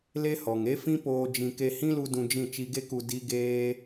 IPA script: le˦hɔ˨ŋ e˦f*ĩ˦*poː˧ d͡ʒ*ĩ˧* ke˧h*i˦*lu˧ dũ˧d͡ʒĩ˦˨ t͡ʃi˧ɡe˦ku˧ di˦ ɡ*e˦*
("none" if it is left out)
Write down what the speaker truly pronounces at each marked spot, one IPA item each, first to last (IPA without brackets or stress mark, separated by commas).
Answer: ĩ˦, ĩ˧, ĩ˦, eː˦